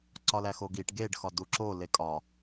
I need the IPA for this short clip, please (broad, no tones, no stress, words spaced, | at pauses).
ǀɒlæxoɡiʈ ɡeɖ xɒduǁo lekʼɒ